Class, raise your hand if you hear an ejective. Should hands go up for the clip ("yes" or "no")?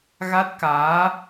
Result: no